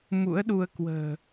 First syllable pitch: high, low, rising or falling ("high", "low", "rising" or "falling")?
rising